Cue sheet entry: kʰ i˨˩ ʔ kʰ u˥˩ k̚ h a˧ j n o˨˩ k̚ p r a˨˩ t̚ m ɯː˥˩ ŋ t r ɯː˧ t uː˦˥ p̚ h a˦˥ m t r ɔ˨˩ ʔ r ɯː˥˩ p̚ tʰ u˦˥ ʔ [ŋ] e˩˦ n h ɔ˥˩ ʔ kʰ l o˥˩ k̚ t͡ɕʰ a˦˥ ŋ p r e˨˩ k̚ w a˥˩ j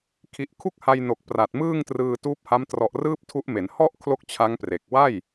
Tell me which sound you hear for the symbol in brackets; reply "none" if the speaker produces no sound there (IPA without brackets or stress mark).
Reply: m